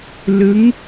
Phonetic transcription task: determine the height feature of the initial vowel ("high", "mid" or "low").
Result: high